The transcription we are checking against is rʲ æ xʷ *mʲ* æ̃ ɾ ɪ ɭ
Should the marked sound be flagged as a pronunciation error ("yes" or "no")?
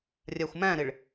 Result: yes